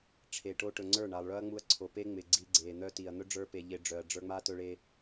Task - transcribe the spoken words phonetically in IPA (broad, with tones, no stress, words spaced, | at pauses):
ʈ͡ʂʰe˨ʈo˧ʈɵ˨ ŋ͡ǀə˞˦˨ɳa˨lˠɭœ˦ɐ̯ ŋ͡mu˧ɐ̯ǀʰo˨pe˦ ŋ͡mɪ˨ɡ͡ǀi˧ ɡ͡ǀe˨n̪œ˦ti˨ɐ̯ n̪ɵ˦ɖ͡ʐə˞˧pe˨ ʎɪ˧ɖ͡ʐœ˨ɐ̯ ɖ͡ʐə˞˧ŋ͡ma˦ tɵ˧ɭe˧